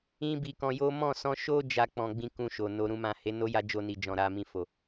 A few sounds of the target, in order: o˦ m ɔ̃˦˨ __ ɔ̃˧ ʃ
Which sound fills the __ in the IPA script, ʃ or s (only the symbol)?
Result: s